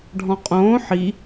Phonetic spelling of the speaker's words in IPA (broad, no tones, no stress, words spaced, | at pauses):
ɖʱɔ̃qʼõː ħi